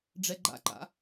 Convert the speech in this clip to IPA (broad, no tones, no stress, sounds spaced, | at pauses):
ɖ͡ʐ ɛ ɡ͡ǃ a̰ ǃ a̰